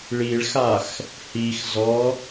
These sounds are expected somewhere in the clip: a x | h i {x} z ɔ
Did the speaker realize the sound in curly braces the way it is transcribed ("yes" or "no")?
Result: yes